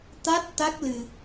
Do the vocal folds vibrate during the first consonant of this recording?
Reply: no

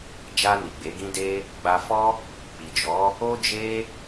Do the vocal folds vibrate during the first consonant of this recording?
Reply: yes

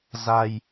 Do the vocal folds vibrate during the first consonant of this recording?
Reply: yes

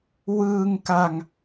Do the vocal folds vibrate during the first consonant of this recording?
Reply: yes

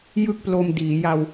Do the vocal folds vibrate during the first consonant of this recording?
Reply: yes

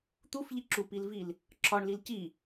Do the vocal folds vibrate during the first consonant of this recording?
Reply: no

